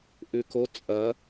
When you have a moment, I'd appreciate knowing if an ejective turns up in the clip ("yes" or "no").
yes